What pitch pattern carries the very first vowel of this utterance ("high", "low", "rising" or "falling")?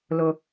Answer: high